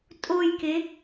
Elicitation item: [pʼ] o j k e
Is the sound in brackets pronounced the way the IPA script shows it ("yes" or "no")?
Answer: no